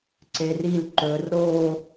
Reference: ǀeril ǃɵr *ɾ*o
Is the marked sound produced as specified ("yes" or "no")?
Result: yes